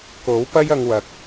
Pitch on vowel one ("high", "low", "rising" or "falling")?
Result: rising